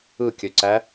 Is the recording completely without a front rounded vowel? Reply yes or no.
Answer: no